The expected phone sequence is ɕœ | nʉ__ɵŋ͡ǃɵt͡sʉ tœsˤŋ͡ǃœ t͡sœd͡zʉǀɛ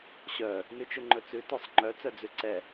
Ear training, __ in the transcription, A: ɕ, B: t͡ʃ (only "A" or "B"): B